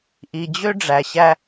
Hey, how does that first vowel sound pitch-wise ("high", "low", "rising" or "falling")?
low